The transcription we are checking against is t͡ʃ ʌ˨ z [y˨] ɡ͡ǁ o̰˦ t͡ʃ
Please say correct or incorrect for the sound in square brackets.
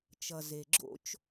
incorrect